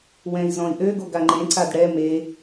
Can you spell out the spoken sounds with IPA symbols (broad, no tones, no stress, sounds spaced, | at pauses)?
w ɛ̃ i̯ z ɔ̃ i̯ ʔ ø ɡ o ɡ a ŋ͡ǃ ẽ ǀ a d ɽ ɛ m e